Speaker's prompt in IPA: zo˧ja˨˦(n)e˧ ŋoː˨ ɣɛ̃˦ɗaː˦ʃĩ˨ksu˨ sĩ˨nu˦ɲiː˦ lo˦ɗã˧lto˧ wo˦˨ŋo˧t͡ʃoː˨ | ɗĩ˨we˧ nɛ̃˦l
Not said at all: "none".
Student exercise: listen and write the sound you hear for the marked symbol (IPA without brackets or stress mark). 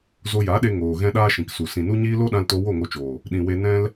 ɗ